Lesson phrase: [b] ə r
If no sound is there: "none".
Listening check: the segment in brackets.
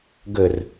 ɡ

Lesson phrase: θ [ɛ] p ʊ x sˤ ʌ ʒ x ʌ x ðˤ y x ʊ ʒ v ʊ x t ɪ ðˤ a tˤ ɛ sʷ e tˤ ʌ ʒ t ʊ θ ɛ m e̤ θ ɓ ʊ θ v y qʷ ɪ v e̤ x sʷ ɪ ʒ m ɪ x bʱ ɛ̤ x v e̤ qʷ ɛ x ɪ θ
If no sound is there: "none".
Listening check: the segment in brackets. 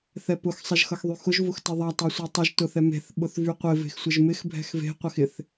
ɛ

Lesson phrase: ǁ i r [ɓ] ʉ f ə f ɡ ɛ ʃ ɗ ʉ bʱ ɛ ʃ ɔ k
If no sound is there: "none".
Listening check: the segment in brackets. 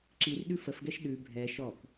ɗ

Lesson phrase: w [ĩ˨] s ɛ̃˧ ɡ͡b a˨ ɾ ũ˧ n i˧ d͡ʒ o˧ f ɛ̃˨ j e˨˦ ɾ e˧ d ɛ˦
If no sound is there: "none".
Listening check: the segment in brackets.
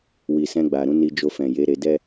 i˨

